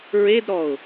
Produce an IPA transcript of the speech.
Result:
ɹ e d ɾ ɔ ʊ̯

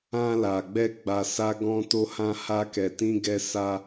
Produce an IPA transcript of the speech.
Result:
ã˧ l a˨ ɡ͡b ɛ˧ ɡ͡b a˧ s a˦ ɡ ɔ̃˦ t o˦ h ã˦ h a˦ k ɛ˧ t ĩ˦ ɡ ɛ˦ s a˦

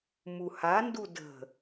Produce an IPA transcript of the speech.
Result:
m u h a n d u d ə̤

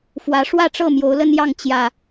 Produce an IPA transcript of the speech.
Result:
f w ä˨˦ ʂ w ä˥˨ ʈ͡ʂ ɤ˥˨ m j o˨˦ ʊ̯ l ə˦ n j ɑ˥˨ ŋ t͡ɕ j ä˨˩

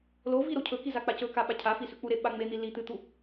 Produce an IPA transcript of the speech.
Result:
l o v i ɾ o cʰ ɵ k i z a k͡p a c ɵ k a ɓ a cʰ a f i s ʉ k͡p u ɾ e ɓ a ŋ͡m e n̪ i l i t̪ ɨ t̪ u

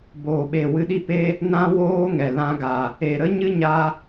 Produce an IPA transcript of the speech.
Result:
b oː˨ ɓ e˨ w ɨ˧ ɗ i˦ p e˦ | n ã˦ w oː˦ ŋ ɛ˨ l ã˧ ɡ a˨ | e˨ ɾ ə˦ ɲ ɨ˦ ɲ a˧

